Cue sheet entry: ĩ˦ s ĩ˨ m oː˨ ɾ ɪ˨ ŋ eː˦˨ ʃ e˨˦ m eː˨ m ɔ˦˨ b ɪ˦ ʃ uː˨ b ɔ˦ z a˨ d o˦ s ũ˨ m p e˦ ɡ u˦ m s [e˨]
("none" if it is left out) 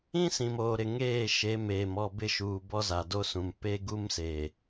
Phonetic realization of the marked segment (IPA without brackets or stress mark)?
eː˨